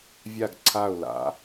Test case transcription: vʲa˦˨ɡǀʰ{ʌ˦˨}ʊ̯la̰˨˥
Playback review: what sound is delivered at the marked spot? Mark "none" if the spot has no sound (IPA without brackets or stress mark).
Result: a˦˨